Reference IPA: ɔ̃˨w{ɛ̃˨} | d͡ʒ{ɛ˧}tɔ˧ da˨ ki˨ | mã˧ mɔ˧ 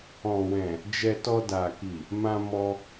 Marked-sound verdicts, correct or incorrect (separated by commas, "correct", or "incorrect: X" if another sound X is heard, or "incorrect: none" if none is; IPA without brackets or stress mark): correct, correct